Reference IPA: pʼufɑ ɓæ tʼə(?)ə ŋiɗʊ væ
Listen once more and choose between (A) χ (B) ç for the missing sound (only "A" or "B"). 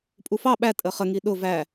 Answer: A